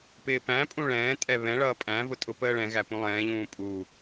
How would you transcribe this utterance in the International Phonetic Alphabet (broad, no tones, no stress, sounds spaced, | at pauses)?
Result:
p ɪː p æ̃ pʼ ũ ɭ ɛ̃ː tʼ ɛ β ɛ̃ ɭ ʌː pʼ æ̃ v ʊ tʼ ʊ p əː ɭ ɛ̃ ɣ æ p ũ lˠ ɛ̃ː ʎ ũː pʼ u